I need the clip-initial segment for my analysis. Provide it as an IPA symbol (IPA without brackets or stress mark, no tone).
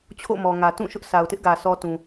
t͡ɕʰ